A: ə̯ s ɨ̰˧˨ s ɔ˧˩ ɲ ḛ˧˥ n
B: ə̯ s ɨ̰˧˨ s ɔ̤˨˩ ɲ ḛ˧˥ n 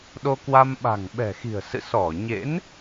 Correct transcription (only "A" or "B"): A